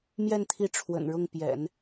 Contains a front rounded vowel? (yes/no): no